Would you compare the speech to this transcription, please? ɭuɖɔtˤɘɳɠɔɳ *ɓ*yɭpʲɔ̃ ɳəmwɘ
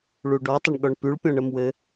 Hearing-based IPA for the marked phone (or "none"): p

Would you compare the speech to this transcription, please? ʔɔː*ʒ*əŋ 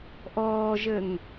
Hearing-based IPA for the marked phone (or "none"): ʒ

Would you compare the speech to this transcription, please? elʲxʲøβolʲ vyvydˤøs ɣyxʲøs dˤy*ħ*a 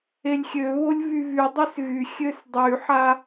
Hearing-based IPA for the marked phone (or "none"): ħ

